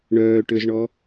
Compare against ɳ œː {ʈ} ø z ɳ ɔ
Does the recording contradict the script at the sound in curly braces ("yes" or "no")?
no